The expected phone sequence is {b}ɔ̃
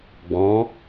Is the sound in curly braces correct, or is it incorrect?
incorrect